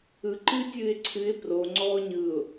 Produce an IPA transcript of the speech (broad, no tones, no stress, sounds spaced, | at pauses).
ɯ ǃ ɨː tʲ ɨː ɪ̯ ǀʰ ɨ ɪ̯ p r o ŋ͡ǀ ɔː ɲ ɯ ʊ̯